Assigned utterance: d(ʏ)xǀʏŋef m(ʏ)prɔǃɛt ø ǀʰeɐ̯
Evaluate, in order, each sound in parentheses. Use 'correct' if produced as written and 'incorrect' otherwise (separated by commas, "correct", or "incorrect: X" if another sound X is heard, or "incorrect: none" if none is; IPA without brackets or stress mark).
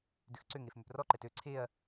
correct, correct